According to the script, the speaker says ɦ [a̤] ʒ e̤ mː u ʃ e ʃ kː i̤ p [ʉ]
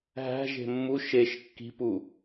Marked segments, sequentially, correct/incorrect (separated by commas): incorrect, incorrect